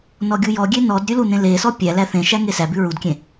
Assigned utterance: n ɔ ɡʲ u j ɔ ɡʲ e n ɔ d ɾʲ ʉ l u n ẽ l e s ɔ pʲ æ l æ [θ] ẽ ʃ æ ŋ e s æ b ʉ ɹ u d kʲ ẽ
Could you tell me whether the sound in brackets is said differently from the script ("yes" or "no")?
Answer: no